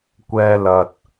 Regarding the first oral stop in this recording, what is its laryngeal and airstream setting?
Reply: plain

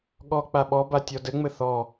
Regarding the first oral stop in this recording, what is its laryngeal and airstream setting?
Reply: implosive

